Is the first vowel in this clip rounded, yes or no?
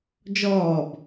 yes